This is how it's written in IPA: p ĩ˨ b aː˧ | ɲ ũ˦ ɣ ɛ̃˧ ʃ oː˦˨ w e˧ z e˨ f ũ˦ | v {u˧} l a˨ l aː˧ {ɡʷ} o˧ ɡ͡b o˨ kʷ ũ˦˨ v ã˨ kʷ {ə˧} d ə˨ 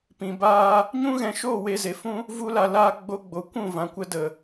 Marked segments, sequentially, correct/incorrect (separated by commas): correct, incorrect, correct